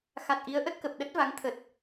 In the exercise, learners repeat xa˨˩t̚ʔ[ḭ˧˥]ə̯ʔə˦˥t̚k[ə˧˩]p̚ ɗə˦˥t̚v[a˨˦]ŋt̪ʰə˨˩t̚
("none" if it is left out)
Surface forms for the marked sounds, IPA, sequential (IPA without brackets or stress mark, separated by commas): i˨˦, ə˨˩, a˨˦